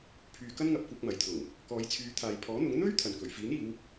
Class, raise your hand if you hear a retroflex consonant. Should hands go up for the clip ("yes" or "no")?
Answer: no